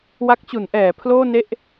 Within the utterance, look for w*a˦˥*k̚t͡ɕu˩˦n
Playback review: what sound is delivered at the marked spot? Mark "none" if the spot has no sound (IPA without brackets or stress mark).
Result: a˦˥